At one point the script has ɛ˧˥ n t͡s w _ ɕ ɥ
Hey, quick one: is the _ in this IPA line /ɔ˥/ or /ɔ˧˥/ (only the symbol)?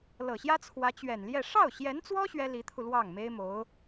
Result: ɔ˥